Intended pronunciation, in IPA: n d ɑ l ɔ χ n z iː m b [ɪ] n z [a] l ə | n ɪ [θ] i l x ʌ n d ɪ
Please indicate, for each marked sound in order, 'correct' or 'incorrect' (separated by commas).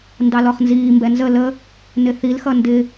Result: incorrect, incorrect, correct